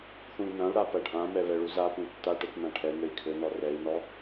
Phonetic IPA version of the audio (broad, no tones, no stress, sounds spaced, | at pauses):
θ ũ i̯ n̪ ɐ̃ u̯ ɽ a p ɐ ɖʱ ã m ɛ β ɛ ɭ u z a p ũ tː a ʈ ɘ t n ã ʈʰ ɛ n̪ ɘ i̯ kʰ ɘ n ɔ r ɛ i̯ n ɔ